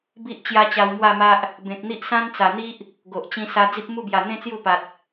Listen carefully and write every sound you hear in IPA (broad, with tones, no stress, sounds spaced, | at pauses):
b i˦ ʔ t͡ɕ j a˦ t͡ɕ a˧ w m w a˥˧ m a˦ ʔ | b ẽ˨ k̚ n̪ i˦ ʔ s ã˦ n t͡s a˨˩ n̪ i˦ ʔ | ɡ o˨ ʔ t͡ɕ ĩ˧ s a˧ d͡z i˦ p̚ m u˥˧ b j a˨˩ n̪ ẽ˦ t͡s j u˥˧ p a˨ t̚